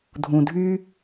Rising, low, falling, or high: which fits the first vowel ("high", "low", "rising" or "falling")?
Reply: low